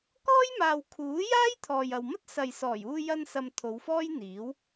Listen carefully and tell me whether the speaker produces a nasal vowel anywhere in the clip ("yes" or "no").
no